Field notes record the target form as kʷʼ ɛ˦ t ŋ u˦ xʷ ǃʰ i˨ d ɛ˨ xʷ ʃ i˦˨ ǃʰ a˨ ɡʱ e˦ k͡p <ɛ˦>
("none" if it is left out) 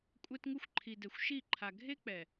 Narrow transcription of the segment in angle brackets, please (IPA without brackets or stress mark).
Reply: ɛ˨